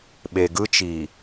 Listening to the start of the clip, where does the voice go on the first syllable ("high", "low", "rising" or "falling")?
low